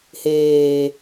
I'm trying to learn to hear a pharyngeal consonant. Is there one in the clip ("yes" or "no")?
no